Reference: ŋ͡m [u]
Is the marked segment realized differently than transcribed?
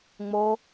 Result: yes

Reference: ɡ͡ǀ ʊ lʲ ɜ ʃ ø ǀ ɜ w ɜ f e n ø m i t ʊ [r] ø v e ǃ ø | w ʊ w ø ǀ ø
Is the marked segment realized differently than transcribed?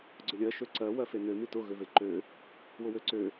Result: yes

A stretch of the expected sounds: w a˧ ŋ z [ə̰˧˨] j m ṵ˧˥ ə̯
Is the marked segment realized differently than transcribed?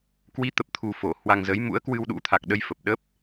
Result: yes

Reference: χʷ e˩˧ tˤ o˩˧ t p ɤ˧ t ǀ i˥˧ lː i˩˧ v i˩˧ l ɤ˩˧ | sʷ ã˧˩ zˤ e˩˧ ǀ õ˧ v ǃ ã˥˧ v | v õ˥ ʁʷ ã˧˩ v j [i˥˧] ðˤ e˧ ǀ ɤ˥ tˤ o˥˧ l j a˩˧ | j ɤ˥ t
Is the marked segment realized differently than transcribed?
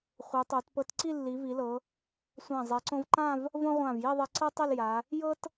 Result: no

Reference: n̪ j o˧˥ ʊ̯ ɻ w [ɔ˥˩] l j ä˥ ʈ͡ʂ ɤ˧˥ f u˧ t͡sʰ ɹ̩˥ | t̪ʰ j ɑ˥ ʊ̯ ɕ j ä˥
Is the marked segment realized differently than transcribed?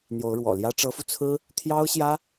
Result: yes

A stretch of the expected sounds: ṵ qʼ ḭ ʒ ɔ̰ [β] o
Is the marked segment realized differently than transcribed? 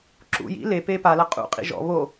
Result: no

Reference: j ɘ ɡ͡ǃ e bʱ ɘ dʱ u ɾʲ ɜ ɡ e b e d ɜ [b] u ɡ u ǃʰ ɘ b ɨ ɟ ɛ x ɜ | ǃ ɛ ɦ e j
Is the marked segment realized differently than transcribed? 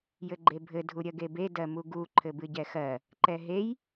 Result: yes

